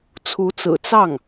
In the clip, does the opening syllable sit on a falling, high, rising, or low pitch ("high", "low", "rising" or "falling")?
rising